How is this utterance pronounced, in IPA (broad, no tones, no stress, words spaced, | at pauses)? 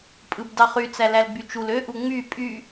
pʼɯbdɑχy t͡sælælɡ͡byt͡ʃul ø ʔuŋ͡my pʼy